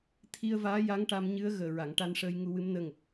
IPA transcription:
t̪ʰ i˧ ə̯ v aː˧˥ j a˧˥ ŋ ʈ a˧ m ɲ ɨ˧˥ ə̯ ɣ əː˨˩ ɹ a˨˩˨ ŋ ʈ a˧ n ʂ əː˧ j ŋ u˧ w ɨ˧˥ m n əː˧ ŋ ə˨˩ k̚

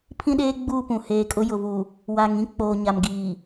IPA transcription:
pʰ ĩ˦ ɗ eː˦ ɡ͡b u˦˨ p ũ˨ h eː˨ kʼ ʊ˦ j ʊ˨ v u˨ | w a˨ ŋ ĩ˦ k͡p oː˨ ɲ a˨ m ɡ iː˨

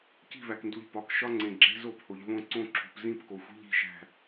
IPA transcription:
c i̤˦˨ v æ˨ k n d u˨ ʎ p ɒ˨ k ʃ ɒ˦ ŋ͡ǀ ẽ˨ ɡ͡ǁ e̤˦ z o˦˨ p h o˨ ʎ v õ˦ ǀ õ˦ ǁʰ ṳ˨ p z ĩ˦ p k o˨ xʷ i̤˦ ʎ i̤˦˨ ʃ æ̤˦˨

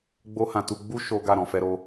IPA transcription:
ɡ͡b o˦ h ã˧ t u˧ ɡ͡b u˦ ʃ o˦ ɡ a˦˨ ɾ ɔ̃˨ f ɛ˧ ɾ o˧

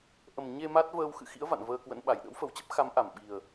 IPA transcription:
ʔ ə˨˩ m ɲ e˧ m a˦˥ t̚ v əː˧ w x ɨ̰˧˨ x ḭ˧˥ ə̯ v a̰˧˨ n v əː˧ k w ə̰˧˥ n ɓ a˧˩ j ɗ ə̰˧˥ w f ə˨˩ w t͡ɕ ə˦˥ p̚ x a˨˦ m ʔ a˧˩ m ɓ i˨˩ ə̯

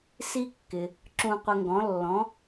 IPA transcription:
s i˥ kː ɪ˩ | ǁ ũ˧ qʷ ə˧ ŋ ɡ ɔ̃˩˥ lː ɔ̃˩˥

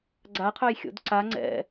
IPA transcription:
ɡ͡ǀ a qʰ œ j xʲ o̰ d ǀ a ŋ͡ǀ ɛ̰

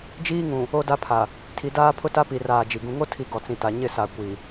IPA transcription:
d͡ʒ iː˦ ŋ ũ˨ | o˦ d a˦ pʰ a˨ | tʰ i˨ d aː˦ pʰ ʊ˦ t a˦ p i˨ r aː˨ d͡ʒ i˨ ɡ ũ˦ ŋ o˦ tʰ i˨ ɡ ɔ˨ t͡s ĩ˨ t a˨ ɲ ɪ˦˨ s a˨ kʷ i˨

